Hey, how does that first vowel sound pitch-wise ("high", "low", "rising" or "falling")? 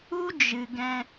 high